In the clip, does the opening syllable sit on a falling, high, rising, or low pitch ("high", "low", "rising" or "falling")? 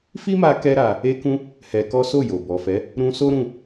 high